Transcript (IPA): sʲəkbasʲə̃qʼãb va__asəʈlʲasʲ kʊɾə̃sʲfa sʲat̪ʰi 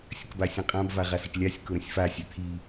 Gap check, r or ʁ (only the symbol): ʁ